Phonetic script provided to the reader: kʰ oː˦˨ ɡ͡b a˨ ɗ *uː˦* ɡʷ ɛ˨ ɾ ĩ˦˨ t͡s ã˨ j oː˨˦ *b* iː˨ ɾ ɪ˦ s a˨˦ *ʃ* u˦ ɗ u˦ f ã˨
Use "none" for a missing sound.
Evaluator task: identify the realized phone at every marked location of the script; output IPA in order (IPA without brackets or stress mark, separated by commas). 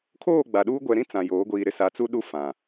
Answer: uː˦, ɡʷ, t͡s